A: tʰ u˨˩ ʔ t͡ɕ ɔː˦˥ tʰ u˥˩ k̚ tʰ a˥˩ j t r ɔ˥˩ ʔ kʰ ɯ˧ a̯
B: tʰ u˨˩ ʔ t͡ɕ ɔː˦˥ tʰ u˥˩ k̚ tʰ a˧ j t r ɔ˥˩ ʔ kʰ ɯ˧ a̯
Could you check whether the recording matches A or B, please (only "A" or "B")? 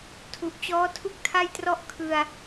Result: A